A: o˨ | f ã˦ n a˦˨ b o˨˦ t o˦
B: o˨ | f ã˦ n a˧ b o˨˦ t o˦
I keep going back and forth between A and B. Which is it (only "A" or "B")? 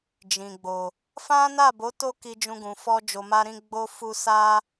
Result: A